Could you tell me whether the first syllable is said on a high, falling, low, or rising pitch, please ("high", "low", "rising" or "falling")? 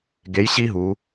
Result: rising